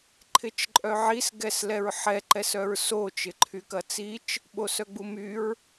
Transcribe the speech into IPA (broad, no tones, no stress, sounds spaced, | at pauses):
ǃʰ ɪ t͡ʃ ǃʼ œ ʕ i s ɡ ɛ s l ɛ ɹ ħ ɛ ǃ ɛ s œ ɹ s o t͡ʃ ɪ ǃʰ y k ɐ t͡s i t͡ʃ | ɓ o s œ ɡ͡b u m y ɹ